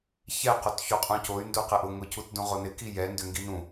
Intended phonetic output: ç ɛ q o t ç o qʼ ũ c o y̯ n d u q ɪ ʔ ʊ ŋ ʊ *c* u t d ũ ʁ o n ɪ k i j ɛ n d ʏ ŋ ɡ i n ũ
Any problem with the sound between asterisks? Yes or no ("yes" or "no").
no